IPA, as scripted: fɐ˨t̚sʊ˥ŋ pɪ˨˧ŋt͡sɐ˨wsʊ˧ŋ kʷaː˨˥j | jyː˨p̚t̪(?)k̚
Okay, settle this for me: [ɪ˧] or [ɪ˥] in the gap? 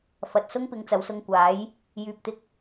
ɪ˧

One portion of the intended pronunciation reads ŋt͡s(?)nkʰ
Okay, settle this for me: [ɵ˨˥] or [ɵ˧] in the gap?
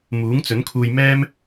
ɵ˨˥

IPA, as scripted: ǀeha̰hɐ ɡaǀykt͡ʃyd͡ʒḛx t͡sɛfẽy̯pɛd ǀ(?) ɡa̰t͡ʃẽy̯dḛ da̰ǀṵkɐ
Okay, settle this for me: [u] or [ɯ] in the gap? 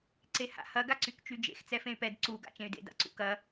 u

